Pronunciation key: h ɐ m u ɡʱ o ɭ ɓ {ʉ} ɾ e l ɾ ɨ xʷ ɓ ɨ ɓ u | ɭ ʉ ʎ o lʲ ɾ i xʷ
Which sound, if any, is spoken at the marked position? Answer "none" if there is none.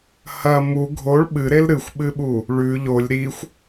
ɨ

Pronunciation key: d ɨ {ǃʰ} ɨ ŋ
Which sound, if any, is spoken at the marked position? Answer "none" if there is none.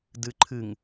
ǃʰ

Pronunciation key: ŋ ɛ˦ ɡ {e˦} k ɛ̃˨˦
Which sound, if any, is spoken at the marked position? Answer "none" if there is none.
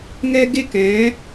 e˦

